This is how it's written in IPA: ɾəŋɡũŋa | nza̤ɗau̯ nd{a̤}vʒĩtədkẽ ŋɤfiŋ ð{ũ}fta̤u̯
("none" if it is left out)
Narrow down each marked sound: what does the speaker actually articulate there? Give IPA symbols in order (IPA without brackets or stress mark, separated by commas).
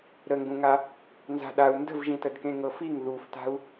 ə̤, u